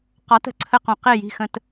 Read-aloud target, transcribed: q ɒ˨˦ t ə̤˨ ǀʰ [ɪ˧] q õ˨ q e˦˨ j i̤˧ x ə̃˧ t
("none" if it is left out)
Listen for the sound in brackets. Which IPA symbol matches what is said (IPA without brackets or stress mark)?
ə˧